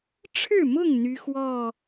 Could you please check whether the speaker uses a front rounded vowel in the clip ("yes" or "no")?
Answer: yes